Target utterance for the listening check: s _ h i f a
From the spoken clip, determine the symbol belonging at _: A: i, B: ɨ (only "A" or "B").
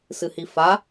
B